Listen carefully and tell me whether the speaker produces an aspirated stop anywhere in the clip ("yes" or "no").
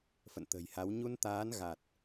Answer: no